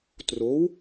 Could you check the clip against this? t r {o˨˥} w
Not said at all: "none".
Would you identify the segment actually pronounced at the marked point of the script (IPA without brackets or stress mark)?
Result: o˨˥